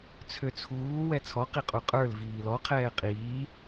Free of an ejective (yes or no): no